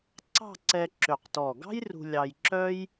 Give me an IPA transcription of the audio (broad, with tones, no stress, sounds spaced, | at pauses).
ǀ ɑ̤˥˧ ǀ ɛ˧ ǁ ø˧˩ q t ɔ˧˩ ɡ ɑ̤˥ j r ṳ˧ lʲ ɑ˧ j ǁ œ˥ j